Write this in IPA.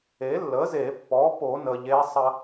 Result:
e˩˥ lː ə˩˥ z e˨˩˦ pː ɔ˩˥ p o˨˩˦ n ə˩ ʎ e˧˥ sˤ ɐ˧

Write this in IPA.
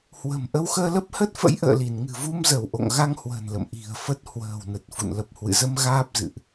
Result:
h w ə̤˨˩ m ʔ ə˧ w x əː˧ l ə˦˥ p̚ h ə˦˥ t̚ f ə̰˧˥ j ʔ ə̰ː˧˨ l i˧˩ n ŋ ɨ̤˨˩ v u˧ m z ə˧˩ w ʔ o̰˧˨ ŋ ɣ a˧ ŋ h w ə̤˨˩ n l ə̰˧˨ m ʔ i̤˨˩ ə̯ f ə˦˥ t̚ h w ə̤ː˨˩ w n ə˨˩ t̚ f ṵ˧˨ n l ə˨˩ p̚ h w ɨ̰˧˨ z ə˧ m ɣ aː˦˥ p̚ z ɨ̰˧˨ ʔ

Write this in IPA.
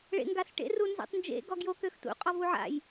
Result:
ɭ ḛ ŋ ɡ a s ʈ ḛ r u n z ḛ tˤ n d͡ʒ ḛ ɡ ɔ ɡ j o k ø x t ṵ qʼ ɔ v u ʕ a̰ j

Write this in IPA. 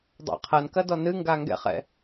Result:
dˤ a̰ qʰ ɐ n k ɐ d ɔ n ɨ ŋ ɡ a ŋ ɡ ɛ̰ χ ɛ̰

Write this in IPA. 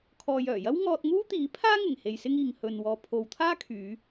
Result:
kʰ ɔː˨ j œː˨˩ j ɐ˥ w ŋ ɔː˧ t̚ ŋ uː˥ t̪ iː˨˥ pʰ aː˥ ŋ ɪ˨˩ ŋ h e˧ j s ɪ˥ ŋ iː˨ ŋ h ɵ˨ n w ɔː˨ pʰ o˨˧ w t̪ʰ aː˥ kʰ yː˨˧

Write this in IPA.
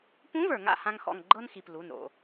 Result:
p ũ˧˥ v ə˞˩ ŋ a̰˦˨ h ã˥ ŋ x ɔ̰˦˨ ŋ ɡ͡ǃ ɤ˥ n x i˩ p l u˩˧˩ n ɾ o̰˦˨

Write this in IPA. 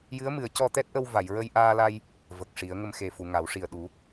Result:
j ɨ˧˥ ə̯ m ɨ˨˩˦ ə̯ c ɔ˧ t̪ ɛ˦˥ t̚ ʔ ə˧ w v a˨˩˨ j ɹ ə˧ j ʔ aː˧ l a˧ j | v ə˨˩ k̚ ʂ i˨˩˦ ə̯ ŋ ə˧ m x e˨˩ f u˨˩˨ ŋ a˨˩˦ w ʂ i˨˩ ə̯ ɗ u˨˩˦

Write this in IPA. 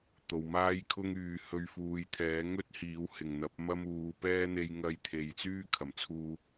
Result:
t̪ o˨ w m aː˥ j kʰ ʊ˥ ŋ yː˨ h ɵ˧ ɥ f uː˨˧ j t̪ʰ ɛː˨˥ ŋ ɵ˥ t̚ h iː˨˥ w h ɪ˨˩ ŋ n̪ ɐ˨˥ p̚ m ɐ˥ m uː˨˧ p ɛː˥ n̪ e˧ j ŋ ɐ˧ j t̪ʰ e˨ j t͡s yː˥ kʰ ɐ˨˩ m t͡sʰ uː˧

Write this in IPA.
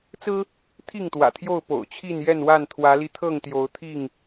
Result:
t͡s ɹ̩˦ | t̪ʰ i˥˨ ŋ t̪ w ä̰˨˩ t̪ʰ j o˥˨ ʊ̯ p o̰˨˩ ʊ̯ t͡ɕʰ i˥˨ n j ɛ˥˨ n w a˥˨ n t̪ʰ w ä˨˦ l i˧ t̪ʰ ɤ˥˨ ŋ t̪ j o˨˦ ʊ̯ t̪ʰ i˥˨ ŋ

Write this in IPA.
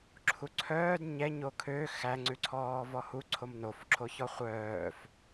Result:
ǁʰ u ǀʰ œː d ɲ ɛ ɲ o kʰ ø x æ ŋ͡ǀ ʉ ǀʰ ɔː v ɔ h u ǀʰ o m n o f ǁʰ o ç ɔ χʷ œː f

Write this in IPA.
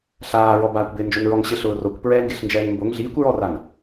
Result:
ɬ aː ɹ ɔ b aː kʷ b ɪː n d͡ʒ o n ɹ ɔ ŋ ɕ ɪ ɬ ʊː r o kʷ p ɹ ɛː ŋ ɡ ɪ ɬ n d͡ʒ ɛː ŋ m b o ŋ ɮ iː kʷ ɹ ɔ r a n

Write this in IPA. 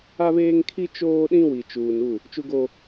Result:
a˦ β eː˦ ŋ kʰ i˦ t͡ʃ oː˦ ɗ ĩ˦ w i˨ t͡ʃ uː˨ n u˦˨ | t͡ʃ u˦ ɡ o˦

